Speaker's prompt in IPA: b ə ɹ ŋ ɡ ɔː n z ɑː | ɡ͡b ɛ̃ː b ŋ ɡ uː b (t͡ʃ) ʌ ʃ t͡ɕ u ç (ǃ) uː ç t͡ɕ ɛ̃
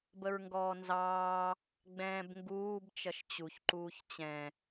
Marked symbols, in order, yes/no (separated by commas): yes, yes